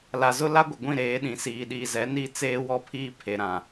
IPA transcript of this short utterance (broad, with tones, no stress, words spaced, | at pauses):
la˨zʊ˦ la˦ɡʷɪ˨ɡʷĩ˦˨ɾeː˨˦ ɗĩ˨siː˨ɗiː˨zɛ˨˦ ni˦˨ t͡seː˦wɔ˦pʰiː˦ pʰe˨ɾã˨